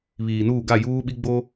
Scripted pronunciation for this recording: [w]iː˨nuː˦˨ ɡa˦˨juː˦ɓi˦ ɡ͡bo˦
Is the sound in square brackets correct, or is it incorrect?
incorrect